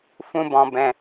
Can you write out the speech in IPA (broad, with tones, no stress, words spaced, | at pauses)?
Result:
fũ˧bɔ̃˨ bɛ̃˨